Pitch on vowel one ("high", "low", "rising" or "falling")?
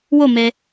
falling